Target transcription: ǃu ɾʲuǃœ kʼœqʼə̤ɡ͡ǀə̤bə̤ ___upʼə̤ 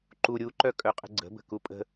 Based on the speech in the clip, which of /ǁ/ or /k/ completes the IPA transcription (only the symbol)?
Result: k